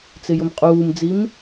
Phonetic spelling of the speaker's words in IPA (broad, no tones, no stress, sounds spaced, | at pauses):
t͡s ɪ j ʊ m qʼ uː m d͡z i m